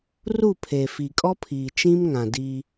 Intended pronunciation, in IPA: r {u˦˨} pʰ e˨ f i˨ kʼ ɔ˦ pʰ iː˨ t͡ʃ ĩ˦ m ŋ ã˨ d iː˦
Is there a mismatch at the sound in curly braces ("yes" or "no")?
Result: no